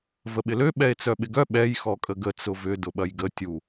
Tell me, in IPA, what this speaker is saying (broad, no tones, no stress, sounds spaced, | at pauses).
v ə ɓ ɪ l ø ɓ ɛ e̯ t͡s œ ɓ ɪ ɡ œ ɓ ɛ j x ɔ kʼ ə ɡ ə t͡s ʊ v ʏ d ʊ ɓ ɐ j ɡ ə tʲ u